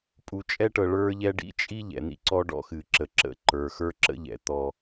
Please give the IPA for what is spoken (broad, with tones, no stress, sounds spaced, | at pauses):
pʼ u˨ t͡ʃʼ ɛ˦ ʈ ɤ˨ ɭ ə˞˦ ʎ ɛ˦ ɖ ḭ˦ t͡ʃʼ i˦ ʎ ɛ̰˨ n̪ ḭ˦ ǀ ɔ˦ ɖ ɔ̰˦ x ɨ˨ ǁ ə˨ ǁ ə̰˦˨ ǃ ə˞˨ x ə˞˦ ǁ ə̰˦ ʎ ɛ̰˨ t̪ ɔ˦